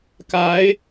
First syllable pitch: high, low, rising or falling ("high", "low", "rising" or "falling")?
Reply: rising